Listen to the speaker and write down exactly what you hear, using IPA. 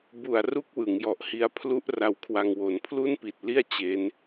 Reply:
b u˨˩ a̯ r u˦˥ k̚ w ɯ˩˦ ŋ j ɔ˨˩ ʔ h i˦˥ a̯ pʰ l u˦˥ ʔ r a˧ w kʰ w a˧ ŋ w o˨˩ n pʰ l u˥˩ n p i˨˩ t̚ l i˥˩ a̯ t͡ɕ eː˦˥ n

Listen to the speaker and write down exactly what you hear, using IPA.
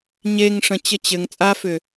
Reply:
ɲ e ŋ ʂ ə̃ t͡ɕ ə t͡ɕ ɘ ŋ t͡sʼ a f ʏ

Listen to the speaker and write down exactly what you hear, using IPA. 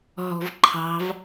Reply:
ɦ ɔ̤ v ǃʰ ɑ̤ v

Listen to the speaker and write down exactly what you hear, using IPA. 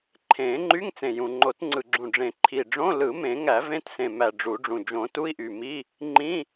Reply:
ǃʰ ẽː˨˩˦ ŋ͡ǃ y˧˥˧ ŋ t͡s ẽ˨˩ j ũ˨˩ ŋ͡ǃ o˨˩˦ t ŋ͡ǀ ɯ˨˩ ɡ͡ǁ ũ˨˩ ɖ͡ʐ ẽ˨˩ ǃʰ i˨˩ ɖ͡ʐ õ˧˥˧ l ɯ˨˩˦ m ẽ˨˩˦ ŋ æ˨˩˦ v ẽ˧˥˧ t s ẽ˨˩ m æ˨˩ ɖ͡ʐ u˨˩˦ ɖ͡ʐ ũ˨˩ d͡ʒ õ˨˩˦ t u˧˥˧ i̯ ʔ y˨˩ m iː˧˥˧ | ŋ͡ǃ ĩ˧˥˧

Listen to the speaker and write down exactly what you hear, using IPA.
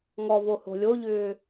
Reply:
ŋ ɔ v o h o̤ lʲ o ʎ ʏː

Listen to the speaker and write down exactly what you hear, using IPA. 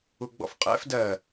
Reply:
u ɡ͡b ɔ̰ f qʼ ɛ̰ f d ɜ

